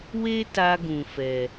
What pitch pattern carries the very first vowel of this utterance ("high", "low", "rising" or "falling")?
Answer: high